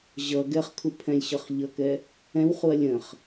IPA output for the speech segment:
ʑʌ ɡɛχkʰupʰɛ̃lʲɕʌχ ʎʌkɛ | ɛ̃wχuɐ̯ lʲə̃χ

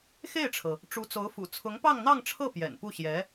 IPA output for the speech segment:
xe˥˩ɪ̯ʈ͡ʂʰɤ˩ | ʈ͡ʂu˧˥t͡so˧˥ʊ̯fṵ˨˩ t͡sʰʊ˧˥ŋpɑ˥˧ŋn̪ɑ˥˧ŋʈ͡ʂʰɤ˥˩ pjɛ̰˨˩n pu˥˩ɕjɛ˧˥

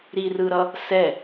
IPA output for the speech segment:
ɾirɯɾʌ | sɛ

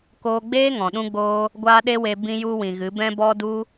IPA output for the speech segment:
koː˧ɡ͡beː˦ŋɔ̃˨ ɗũ˦ɡ͡boː˦ | ɡʷaː˦ɗe˦we˧ bĩ˧ju˧wĩ˨ ɣɨ˨˦bɛ̃˦bɔ˦du˦

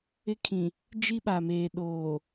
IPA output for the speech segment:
ɪ˦kʰĩ˨ | d͡ʒi˦ɓa˨meː˨ ɗoː˨

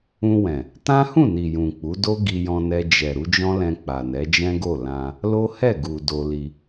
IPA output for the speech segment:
ũ˧ wɛ̃˨ | tã˦hũ˦˨ni˨ jũ˨k͡pu˨˦ do˦ɡi˧jɔ̃˧nɛ˧ d͡ʒɛ˨ ɾu˨˦d͡ʒɔ̃˦lɛ̃˧ k͡pa˨nɛ˨˦d͡ʒɛ̃˦ɡo˦˨ lã˧ | lo˦hɛ˦˨ɡu˨ do˧li˧

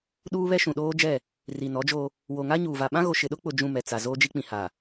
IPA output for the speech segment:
ɗuː˦βɛ˦ʃũ˨ ɗoː˦d͡ʒɛ˦˨ | ri˨nɔ˨˦d͡ʒo˦ | wo˨ŋa˦ɲuː˨ va˨ɓã˦ɣo˨ ʃɪ˨ɗʊ˦k͡pʊ˨ d͡ʒũ˦˨mɛ˨t͡sa˨ zoː˦d͡ʒi˦k͡pĩ˨ ha˨

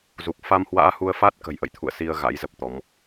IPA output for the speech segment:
zu˨˩k̚ fa˧mhwa̰ː˧˥hu˧ə̯ fa˦˥t̚ kə̤˨˩jʔə̰˧˨jt̪ʰṵ˧˨ə̯ si˧ə̯ ɣa̰˧˥jzə˦˥p̚t̪ɔ˨˦m

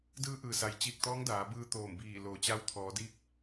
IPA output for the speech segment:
dɯː˧˥ʔɯː˩sa˩j t͡ɕiː˧˩k̚t̪ɔː˧˥ŋdaː˩˧bɯː˧ t̪oː˧˩mbiː˧˩ loː˩t͡ɕa˧wt̪ʰɔː˩˧diː˧˥k̚

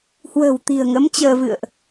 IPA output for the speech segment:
hwə̤ː˨˩wt̪i̤˨˩ə̯ŋə˨˦m t͡ɕəː˧vɨ̰˧˨ə̯ʔ

